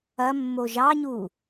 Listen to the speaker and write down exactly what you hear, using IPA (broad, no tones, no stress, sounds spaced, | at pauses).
ɐ mː o ʒ ɑ ɲ u